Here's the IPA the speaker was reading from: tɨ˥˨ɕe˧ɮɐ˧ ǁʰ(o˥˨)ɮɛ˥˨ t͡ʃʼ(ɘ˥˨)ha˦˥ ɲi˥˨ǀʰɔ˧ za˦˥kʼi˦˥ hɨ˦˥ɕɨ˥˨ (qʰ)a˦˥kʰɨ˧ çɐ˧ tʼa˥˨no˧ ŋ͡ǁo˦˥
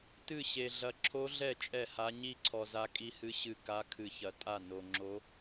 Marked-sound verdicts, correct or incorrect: incorrect: o˦˥, incorrect: ɛ˥˨, incorrect: k

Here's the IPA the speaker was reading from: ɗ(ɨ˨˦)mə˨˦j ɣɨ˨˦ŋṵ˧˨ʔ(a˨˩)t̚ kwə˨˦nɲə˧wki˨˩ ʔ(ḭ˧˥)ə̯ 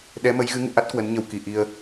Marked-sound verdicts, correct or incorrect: incorrect: ɛ˨˦, incorrect: a˦˥, incorrect: i˧

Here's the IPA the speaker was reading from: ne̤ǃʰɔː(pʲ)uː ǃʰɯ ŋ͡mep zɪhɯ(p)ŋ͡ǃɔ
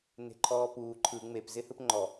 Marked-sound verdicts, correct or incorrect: incorrect: p, correct

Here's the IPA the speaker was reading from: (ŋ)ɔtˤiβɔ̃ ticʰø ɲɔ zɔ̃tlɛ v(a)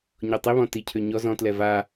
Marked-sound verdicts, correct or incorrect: incorrect: ɲ, correct

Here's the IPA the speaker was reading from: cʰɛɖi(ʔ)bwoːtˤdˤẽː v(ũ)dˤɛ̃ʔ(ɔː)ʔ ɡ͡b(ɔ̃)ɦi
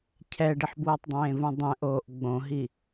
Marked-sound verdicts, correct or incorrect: incorrect: ħ, correct, incorrect: oː, incorrect: õ

